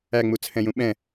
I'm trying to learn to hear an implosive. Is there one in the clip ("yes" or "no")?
yes